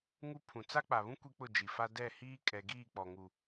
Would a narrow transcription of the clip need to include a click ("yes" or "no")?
no